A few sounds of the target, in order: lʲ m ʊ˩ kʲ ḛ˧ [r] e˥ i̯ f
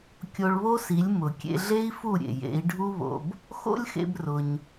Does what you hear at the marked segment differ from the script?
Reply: yes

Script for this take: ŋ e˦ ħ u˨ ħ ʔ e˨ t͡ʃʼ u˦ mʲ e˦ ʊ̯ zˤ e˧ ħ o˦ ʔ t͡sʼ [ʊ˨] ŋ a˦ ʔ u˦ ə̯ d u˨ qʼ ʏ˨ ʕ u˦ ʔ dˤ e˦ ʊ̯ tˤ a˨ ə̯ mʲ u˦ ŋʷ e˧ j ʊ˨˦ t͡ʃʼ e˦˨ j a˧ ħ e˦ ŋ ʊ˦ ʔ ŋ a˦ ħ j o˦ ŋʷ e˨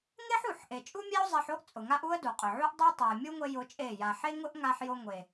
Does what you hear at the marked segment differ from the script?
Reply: no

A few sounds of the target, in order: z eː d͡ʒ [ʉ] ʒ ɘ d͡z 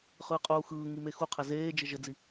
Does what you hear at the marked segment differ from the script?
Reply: yes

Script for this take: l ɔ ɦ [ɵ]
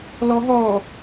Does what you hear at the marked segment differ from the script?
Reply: yes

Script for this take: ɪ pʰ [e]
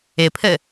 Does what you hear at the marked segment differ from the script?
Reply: yes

